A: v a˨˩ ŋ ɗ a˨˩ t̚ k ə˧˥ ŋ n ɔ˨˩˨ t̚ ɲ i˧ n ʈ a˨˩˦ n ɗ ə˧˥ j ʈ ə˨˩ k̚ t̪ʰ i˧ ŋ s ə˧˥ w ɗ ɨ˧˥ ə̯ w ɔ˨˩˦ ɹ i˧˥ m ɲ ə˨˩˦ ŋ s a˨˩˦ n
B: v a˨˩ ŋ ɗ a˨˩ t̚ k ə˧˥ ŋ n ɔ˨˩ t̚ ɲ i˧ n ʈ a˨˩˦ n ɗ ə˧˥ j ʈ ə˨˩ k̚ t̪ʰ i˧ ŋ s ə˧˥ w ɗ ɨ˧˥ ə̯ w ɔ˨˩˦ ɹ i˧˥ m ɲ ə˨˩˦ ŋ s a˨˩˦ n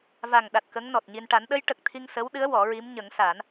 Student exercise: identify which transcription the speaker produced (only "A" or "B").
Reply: B